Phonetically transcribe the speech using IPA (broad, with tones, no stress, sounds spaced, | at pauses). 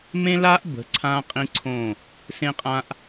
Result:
m ẽ˦ l a˦ ʔ b ə̤˨˦ ǀʰ ã˦ qʼ ĩ˦ ǀʰ õ˦˨ | s ẽ˦ qʼ ã˦ ʔ